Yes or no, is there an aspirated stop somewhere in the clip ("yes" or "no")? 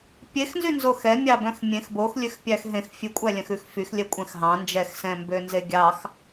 no